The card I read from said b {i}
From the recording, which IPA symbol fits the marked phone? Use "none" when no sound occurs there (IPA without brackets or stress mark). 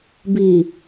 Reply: i